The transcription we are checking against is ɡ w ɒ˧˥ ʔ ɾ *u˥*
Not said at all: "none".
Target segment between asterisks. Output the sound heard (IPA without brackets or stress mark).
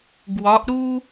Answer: u˥